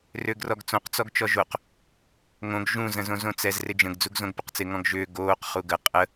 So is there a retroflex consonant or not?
no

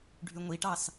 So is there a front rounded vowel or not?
yes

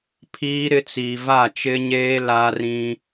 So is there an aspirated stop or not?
yes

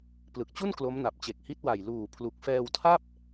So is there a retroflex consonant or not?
no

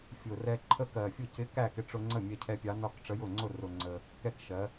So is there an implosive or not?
no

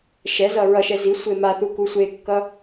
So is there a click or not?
no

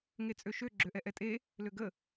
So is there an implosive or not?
no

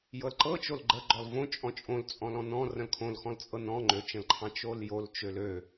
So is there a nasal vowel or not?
yes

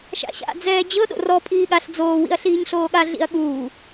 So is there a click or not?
no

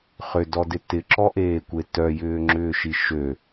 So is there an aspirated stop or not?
no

